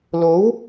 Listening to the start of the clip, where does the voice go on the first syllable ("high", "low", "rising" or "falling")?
rising